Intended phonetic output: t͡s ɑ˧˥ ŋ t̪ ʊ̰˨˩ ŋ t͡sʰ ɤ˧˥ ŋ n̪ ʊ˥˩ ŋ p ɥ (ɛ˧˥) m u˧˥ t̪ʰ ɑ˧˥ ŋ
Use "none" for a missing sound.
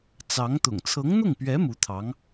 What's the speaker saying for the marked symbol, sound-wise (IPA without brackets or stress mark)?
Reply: ɛ˧˥